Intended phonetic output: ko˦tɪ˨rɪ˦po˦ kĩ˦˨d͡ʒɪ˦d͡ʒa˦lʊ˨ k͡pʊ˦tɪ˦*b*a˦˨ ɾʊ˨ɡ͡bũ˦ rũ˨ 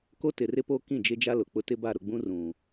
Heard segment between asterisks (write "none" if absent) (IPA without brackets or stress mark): b